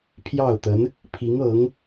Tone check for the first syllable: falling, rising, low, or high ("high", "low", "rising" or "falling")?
falling